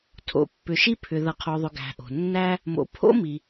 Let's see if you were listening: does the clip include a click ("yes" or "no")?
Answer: no